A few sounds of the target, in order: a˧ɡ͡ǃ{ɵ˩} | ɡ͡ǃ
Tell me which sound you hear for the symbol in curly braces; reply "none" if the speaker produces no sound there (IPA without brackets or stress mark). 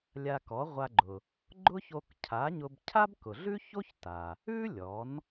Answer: ʊ˩